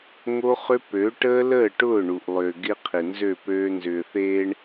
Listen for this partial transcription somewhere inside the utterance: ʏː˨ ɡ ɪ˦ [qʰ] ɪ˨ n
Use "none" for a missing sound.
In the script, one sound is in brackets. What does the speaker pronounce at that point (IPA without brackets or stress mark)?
qʰ